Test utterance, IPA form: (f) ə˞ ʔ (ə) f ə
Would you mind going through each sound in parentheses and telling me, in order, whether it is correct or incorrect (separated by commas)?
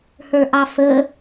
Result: incorrect, incorrect